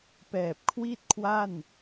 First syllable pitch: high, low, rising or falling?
low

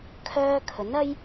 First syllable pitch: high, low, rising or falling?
high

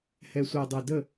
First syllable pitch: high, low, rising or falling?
low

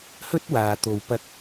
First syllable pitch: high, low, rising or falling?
high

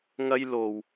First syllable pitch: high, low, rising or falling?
high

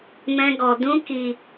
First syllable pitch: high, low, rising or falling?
high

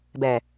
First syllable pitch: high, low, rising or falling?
low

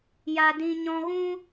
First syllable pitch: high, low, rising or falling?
low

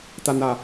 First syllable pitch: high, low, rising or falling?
low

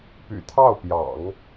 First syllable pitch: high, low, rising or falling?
low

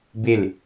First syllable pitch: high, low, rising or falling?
falling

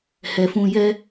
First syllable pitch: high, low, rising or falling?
low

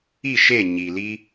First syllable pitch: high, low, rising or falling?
falling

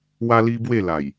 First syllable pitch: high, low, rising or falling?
high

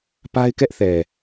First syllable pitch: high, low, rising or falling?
high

